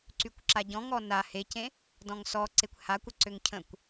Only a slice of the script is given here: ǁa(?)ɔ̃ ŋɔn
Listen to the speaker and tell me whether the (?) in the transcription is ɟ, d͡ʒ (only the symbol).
ɟ